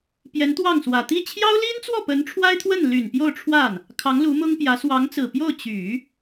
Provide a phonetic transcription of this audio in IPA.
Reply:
pjɛ˧˥nt̪wɑ˥˩ŋswä˨˩ t̪i˥˩ t͡ɕʰjɑ˥ʊ̯li˥nt͡swɔ˥˩ pə˧˥nʈ͡ʂʰwa˥ɪ̯t̪ʰwə˥˩n ly˨˩n pjo˥˧ʊ̯ʈ͡ʂʰwa˥˩n | kʰɑ˧˥ŋlu˧˥mʊ˥ŋpjä˧˥ swɑ˧˥ŋt͡sɹ̩˨˩pjo˥˩ʊ̯ t͡ɕy˨˩˦

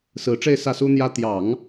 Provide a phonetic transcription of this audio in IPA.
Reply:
sɹ̩˧˥ʈ͡ʂe˥˧ɪ̯ sä˥˩su˥n̪jä˥ t̪jɑ˨˩˦ŋ

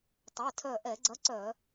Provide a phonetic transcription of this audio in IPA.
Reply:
tˤɛ˩˧˩tʰœ˧˩ʔɛ˧˩˧ɡ͡ǀɐ˨˥ ǀœ˧˩˧

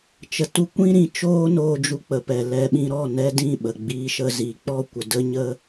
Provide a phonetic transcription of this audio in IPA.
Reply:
t͡ʃə˨tu˧kʷĩ˦ ɾĩ˨t͡ʃoː˦ noː˧ d͡ʒu˧k͡pə˨ pɛ˨ lɛ˧ɓĩ˧ ɾɔ˦˨nɛ˦dĩ˦˨ ɓə˨ ɡ͡biː˧ʃə˧ziː˨ k͡pɔ˦˨kʷə˨ də˦ɲə˦

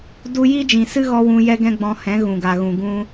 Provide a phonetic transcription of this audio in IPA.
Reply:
du˦ ji˦d͡ʒĩ˨sɨ˦ɣɔ˧ wũ˧ jɛ˦ɡɛ̃˦ɡ͡bɔ̃˧hɛ̃˨˦ ɣũ˨ɡa˨ɣũ˨ ɡũ˧

